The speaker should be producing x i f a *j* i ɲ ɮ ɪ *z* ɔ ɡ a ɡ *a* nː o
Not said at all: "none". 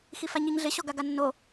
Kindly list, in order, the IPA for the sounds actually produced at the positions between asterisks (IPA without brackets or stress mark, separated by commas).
ɲ, ɕ, a